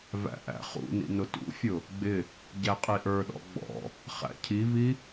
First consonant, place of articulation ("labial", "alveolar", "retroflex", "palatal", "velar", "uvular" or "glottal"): labial